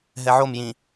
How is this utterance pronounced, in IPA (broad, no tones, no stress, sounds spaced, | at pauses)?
ɦ ɛ ʕ o m j ĩ